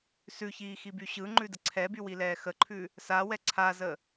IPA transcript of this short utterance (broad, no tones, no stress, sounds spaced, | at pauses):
s ʉ ç iː x i b y ɕ ɯ ŋ͡ǃ ʉ d ə ǀʰ ɛ b y w i l ɛː x ə ǃʰ ʉ | s a w ɛ ǀʰ a z ə